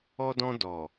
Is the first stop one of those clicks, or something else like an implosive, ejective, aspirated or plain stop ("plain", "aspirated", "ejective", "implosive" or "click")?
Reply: plain